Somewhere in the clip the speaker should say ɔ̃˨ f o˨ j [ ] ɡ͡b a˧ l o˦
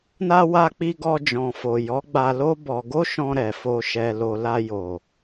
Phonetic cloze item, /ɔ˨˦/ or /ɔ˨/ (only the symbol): ɔ˨˦